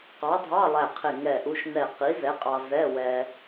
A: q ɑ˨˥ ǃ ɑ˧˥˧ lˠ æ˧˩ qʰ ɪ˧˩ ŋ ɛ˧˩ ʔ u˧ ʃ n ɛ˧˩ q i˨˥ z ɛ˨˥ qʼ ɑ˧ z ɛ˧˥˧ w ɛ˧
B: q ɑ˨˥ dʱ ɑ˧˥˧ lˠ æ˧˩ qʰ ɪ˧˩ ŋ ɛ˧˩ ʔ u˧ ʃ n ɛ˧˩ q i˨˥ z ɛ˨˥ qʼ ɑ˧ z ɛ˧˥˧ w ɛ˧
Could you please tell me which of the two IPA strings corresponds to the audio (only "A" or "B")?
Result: B